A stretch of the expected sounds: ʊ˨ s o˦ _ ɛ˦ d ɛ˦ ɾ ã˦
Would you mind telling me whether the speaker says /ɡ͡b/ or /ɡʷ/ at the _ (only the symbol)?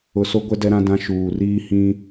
ɡʷ